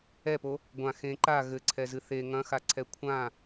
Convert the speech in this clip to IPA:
ɛ p o | ɡʷ ã x ẽ ǃ a ɣ ɘ ǀʰ ɛ z ɨ θ e ŋ ɐ̃ x a ǀʰ ɛ kʷʰ ã

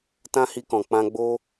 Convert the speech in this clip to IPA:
t ã˦ h i˧ k ɔ̃˨ k͡p ã˧ ɡ͡b o˦

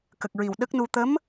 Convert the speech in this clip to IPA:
k ə˨˩ k̚ ɹ i˨˩ w ɗ ə˦˥ k̚ n u˧ t̪ ə˧˥ m

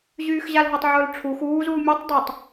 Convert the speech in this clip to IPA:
ʑ yː x ʑ a l ɦ ə tˤ ʕ ʊː l ʈ͡ʂʰ u x uː z uː mʲ ɛ tˤ dˤ y tˤ

